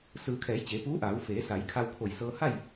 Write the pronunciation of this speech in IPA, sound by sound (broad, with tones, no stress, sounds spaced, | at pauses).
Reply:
s ɯː˩ kʰ ɛː˩˧ j t͡ɕ e˩˧ p uː˧˥ ʔ aː˩˧ w f eː˩˧ s a˩˧ j kʰ a˧ w kʰ o˧˩ j s ɤː˧ h a˥˨ j